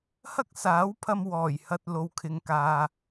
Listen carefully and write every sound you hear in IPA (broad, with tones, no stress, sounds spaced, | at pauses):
h ɐ˥ k̚ s aː˨˥ w pʰ ɐ˧ m w ɔː˨˩ j h ɐ˧ t̚ l o˧ w kʰ ɪ˧ ŋ k aː˧